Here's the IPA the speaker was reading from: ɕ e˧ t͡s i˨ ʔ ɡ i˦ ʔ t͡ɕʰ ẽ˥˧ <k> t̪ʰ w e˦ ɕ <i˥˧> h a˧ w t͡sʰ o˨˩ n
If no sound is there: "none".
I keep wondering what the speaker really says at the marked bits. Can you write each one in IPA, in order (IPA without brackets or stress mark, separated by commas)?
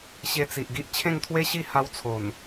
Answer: ŋ, i˥˧